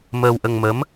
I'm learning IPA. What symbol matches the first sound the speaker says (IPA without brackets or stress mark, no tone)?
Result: m